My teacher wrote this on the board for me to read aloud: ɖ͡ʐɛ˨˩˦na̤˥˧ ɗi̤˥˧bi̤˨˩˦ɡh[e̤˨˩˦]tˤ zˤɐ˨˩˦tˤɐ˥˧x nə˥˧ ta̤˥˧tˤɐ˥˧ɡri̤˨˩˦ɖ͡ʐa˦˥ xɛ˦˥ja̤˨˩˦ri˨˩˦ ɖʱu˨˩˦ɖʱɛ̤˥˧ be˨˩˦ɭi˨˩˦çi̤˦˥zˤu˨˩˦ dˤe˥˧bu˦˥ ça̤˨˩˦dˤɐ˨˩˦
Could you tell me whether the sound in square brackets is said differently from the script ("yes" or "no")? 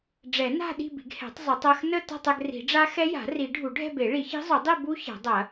yes